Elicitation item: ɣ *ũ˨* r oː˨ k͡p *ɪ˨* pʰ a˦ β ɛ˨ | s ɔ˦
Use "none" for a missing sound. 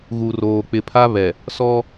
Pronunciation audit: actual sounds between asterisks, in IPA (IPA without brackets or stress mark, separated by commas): u˨, ɪ˨